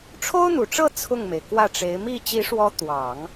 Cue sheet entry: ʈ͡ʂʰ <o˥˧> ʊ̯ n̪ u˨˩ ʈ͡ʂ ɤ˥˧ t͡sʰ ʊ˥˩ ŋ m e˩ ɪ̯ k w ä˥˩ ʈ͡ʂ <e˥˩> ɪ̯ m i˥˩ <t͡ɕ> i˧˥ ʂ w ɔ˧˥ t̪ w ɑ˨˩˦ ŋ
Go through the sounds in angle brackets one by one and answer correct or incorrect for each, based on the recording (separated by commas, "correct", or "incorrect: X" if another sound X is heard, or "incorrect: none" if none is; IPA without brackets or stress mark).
incorrect: o˥, incorrect: e˧˥, correct